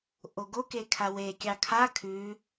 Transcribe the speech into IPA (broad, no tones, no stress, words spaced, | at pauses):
ʔoɡoke kʰawekʲɑ kʰa kʰʉ